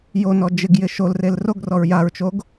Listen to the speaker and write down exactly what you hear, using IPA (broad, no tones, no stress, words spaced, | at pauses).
jonɔ d͡ʒɪɡjɪ ʃolrel roɡrɔɹ jaɹt͡ʃoɡ